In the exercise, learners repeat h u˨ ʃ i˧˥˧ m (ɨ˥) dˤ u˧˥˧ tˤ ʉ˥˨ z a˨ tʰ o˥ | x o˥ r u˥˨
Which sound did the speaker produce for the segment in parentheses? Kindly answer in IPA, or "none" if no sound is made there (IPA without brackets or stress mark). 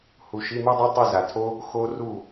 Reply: ʉ˥